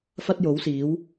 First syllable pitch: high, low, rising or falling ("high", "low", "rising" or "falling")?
high